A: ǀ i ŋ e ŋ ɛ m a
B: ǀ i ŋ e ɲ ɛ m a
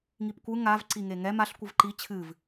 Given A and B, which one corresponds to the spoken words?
A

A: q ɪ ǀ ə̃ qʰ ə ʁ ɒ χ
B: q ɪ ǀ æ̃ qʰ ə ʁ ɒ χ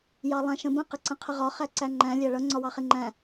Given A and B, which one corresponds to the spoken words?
A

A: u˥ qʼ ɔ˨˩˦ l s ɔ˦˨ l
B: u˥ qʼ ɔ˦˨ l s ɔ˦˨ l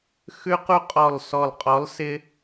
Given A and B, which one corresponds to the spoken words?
B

